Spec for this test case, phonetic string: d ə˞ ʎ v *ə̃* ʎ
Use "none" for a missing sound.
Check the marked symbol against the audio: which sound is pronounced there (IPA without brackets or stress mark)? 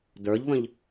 ə̃